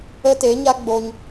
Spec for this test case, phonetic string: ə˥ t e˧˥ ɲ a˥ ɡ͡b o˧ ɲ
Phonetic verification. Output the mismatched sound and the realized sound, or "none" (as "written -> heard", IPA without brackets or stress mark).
none